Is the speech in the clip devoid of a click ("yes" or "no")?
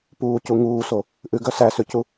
yes